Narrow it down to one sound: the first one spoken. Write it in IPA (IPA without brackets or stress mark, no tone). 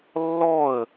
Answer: lː